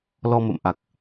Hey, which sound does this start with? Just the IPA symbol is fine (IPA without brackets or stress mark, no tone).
l